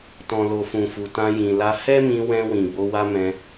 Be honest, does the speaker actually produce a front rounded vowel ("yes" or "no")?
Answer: no